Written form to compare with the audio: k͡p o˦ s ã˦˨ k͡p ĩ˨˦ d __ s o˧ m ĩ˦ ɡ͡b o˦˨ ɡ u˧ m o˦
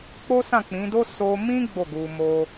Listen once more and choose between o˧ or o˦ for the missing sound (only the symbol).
o˦